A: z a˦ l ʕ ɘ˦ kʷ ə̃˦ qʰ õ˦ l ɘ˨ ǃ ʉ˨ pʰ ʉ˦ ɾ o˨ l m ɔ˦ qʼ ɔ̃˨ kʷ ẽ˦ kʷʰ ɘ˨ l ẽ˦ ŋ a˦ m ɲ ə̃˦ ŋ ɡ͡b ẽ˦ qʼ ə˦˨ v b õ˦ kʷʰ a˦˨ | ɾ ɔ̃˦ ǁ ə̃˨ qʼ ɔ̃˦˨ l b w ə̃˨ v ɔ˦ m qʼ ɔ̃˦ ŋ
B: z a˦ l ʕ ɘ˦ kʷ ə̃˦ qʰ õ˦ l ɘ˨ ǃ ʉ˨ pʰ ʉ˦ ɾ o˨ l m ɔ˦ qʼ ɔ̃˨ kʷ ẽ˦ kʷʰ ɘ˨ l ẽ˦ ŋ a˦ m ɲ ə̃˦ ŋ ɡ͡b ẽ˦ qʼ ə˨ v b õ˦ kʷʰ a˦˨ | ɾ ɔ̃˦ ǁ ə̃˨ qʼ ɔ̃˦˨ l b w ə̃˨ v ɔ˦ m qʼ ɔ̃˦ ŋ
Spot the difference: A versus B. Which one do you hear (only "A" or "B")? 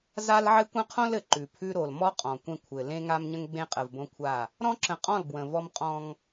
B